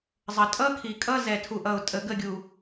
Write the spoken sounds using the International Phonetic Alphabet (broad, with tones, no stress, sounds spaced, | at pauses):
zˤ ə˨ tʼ ʌ˦ kʰ i˨ kʼ ʌ˦ z ɛ˨ tʰ u˨ ʔ ʌ˨ ʊ̯ tʼ ə˨ ɡ ə˦˨ ɡʲ u˨